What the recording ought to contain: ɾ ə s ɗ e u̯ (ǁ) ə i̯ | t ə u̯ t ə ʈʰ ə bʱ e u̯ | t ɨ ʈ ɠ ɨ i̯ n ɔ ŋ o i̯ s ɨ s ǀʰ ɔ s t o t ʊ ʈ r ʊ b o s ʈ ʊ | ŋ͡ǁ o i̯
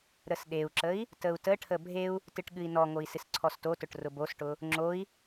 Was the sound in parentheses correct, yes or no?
yes